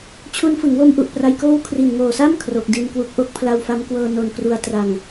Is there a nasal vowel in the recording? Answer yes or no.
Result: no